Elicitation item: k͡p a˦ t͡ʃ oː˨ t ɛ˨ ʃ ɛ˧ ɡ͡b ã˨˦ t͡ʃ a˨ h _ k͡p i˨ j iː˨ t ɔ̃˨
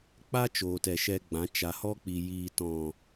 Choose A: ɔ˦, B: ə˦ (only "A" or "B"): A